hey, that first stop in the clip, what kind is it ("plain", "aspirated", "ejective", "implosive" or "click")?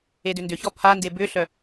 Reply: plain